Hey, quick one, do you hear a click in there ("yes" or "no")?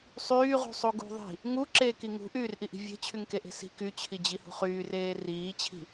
yes